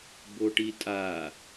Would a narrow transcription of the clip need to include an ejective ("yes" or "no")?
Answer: yes